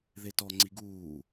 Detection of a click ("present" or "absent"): present